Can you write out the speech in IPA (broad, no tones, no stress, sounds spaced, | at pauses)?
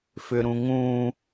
f ʏ ɾ ũ ŋ ũ